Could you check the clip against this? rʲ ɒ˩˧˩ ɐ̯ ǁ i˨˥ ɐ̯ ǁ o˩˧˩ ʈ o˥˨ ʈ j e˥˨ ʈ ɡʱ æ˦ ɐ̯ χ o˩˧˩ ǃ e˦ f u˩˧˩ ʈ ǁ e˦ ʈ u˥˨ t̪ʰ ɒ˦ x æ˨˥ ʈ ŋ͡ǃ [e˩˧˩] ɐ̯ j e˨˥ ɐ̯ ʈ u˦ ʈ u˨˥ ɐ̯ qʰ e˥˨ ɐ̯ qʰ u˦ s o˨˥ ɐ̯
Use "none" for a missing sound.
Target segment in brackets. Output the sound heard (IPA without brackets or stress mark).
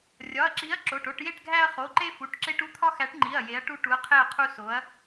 i˩˧˩